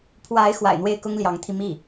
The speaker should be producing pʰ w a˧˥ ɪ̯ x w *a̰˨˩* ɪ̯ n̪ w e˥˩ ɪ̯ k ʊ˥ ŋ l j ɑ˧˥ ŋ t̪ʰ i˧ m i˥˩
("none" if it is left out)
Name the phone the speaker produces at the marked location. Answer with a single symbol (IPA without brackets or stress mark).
a̰˨˩